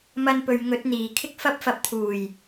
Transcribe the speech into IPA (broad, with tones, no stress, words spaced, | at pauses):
mɐ˧npɵ˨ɥ ŋɵ˨˥t̚n̪iː˨˩ kʰɪ˥k̚fɐ˥p̚fɐ˧p̚ t̪ʰuː˨˩j